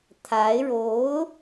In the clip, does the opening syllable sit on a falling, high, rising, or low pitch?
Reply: rising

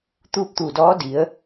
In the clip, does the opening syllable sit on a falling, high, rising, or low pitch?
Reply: falling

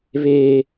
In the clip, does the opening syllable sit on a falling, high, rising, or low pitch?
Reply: low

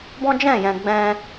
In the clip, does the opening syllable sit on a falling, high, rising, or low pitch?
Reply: high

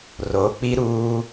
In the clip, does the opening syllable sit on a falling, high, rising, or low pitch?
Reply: rising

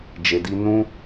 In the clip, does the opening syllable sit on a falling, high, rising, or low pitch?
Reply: low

